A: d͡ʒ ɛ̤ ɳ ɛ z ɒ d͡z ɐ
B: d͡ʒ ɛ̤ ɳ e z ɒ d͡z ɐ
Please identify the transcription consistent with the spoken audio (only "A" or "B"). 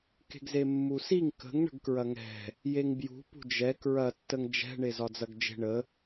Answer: B